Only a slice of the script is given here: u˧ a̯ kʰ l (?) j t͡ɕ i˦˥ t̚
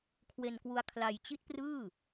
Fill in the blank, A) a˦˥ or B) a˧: B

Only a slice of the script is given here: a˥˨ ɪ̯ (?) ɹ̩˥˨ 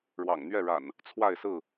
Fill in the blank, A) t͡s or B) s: B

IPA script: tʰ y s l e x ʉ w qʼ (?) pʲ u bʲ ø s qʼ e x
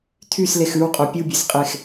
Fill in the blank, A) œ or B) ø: A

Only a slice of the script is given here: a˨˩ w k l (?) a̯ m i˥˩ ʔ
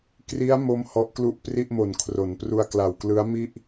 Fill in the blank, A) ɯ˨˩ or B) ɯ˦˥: B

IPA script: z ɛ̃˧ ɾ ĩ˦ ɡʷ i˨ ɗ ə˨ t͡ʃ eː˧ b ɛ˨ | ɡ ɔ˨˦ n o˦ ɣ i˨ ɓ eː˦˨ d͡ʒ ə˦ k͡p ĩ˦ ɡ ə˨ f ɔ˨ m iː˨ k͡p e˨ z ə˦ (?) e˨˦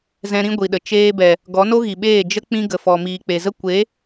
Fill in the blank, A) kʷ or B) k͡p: A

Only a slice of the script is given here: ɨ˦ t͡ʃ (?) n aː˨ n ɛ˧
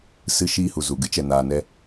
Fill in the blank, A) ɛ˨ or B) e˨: A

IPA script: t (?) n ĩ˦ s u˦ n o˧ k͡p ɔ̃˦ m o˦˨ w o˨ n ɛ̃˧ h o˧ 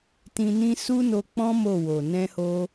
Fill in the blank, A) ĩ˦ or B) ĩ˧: B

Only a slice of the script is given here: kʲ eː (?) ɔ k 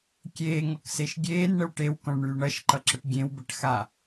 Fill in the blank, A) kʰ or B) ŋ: B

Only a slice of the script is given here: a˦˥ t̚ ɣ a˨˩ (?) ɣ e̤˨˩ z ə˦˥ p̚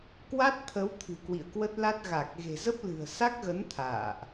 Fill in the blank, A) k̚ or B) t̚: A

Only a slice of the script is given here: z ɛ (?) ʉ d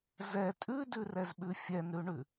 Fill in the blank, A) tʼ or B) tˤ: A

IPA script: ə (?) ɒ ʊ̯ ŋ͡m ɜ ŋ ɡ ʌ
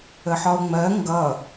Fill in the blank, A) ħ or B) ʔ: A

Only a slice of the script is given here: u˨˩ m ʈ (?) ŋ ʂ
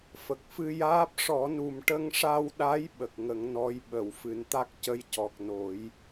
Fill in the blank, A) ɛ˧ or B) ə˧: B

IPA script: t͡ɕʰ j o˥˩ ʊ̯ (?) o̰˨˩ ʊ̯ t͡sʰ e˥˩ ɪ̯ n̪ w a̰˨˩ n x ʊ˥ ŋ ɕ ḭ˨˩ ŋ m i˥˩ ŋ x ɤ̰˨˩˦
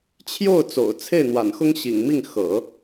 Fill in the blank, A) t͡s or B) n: A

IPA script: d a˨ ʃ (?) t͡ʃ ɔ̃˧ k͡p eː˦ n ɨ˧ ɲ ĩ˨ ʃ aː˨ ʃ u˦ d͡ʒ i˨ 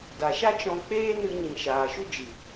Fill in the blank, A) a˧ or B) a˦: B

